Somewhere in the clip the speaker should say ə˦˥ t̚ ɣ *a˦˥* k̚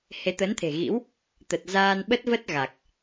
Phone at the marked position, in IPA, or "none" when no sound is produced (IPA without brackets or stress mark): a˨˩